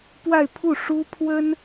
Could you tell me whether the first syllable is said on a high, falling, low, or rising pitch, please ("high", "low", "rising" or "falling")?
falling